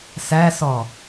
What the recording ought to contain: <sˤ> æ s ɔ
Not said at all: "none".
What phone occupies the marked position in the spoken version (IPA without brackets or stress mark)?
s